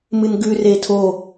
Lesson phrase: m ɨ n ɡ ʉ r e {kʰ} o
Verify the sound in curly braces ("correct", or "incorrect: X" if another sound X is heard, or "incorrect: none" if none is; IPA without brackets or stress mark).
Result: incorrect: tʰ